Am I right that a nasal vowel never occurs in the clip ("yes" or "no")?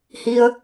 yes